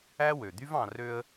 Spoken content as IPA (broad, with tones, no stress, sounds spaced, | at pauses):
æ˥ w ø˩ d̪ y˥ v ɑ̃˨ r ø˦ ə̯